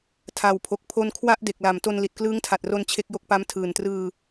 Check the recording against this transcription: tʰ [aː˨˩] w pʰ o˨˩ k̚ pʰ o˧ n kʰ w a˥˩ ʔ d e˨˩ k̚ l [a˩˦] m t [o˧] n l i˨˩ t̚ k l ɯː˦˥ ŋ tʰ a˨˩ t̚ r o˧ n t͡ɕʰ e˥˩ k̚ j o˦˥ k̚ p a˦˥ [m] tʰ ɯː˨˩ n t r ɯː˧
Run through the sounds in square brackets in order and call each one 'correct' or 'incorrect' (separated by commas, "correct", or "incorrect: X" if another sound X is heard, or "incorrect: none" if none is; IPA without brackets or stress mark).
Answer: incorrect: a˨˩, correct, correct, correct